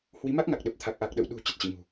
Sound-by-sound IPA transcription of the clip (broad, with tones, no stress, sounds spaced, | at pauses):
h w i˨˦ m a˦˥ k̚ ŋ a˨˩ k̚ ɗ ə˨˩ p̚ t̪ʰ a˨˩ k̚ ʔ a˨˩ k̚ ɗ ə̰˧˨ w ɗ ṳ˨˩ t͡ɕ ə˦˥ t̚ t͡ɕ ḭ˧˨ ŋ ṳ˨˩